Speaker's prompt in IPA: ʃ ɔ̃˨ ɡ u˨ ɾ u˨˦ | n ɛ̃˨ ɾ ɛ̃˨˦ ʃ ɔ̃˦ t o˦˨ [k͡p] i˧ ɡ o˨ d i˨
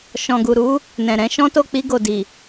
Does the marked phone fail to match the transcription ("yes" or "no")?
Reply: no